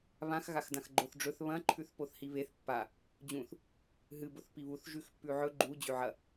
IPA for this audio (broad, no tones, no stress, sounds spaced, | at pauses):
β ã x ɣ a x d ã x ɡ͡ǃ o θ ɖ͡ʐ ɵ θ β ɐ̃ ǃʰ ʉ θ p o θ h i β e θ pː a | d͡ʑ ũ θ | ɦ ɨ b o θ p i β u θ ʒ ʉ x pː ʉ ʕ ɵ ɡ͡ǃ u d͡ʑ ʉ ʕ ɐ